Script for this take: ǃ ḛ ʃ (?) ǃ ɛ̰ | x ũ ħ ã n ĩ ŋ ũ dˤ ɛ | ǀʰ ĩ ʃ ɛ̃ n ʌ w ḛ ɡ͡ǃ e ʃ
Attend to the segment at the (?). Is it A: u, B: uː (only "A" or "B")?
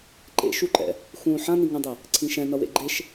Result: A